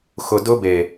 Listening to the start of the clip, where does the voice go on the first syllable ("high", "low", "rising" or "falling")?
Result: low